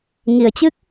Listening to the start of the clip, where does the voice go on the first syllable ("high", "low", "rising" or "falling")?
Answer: low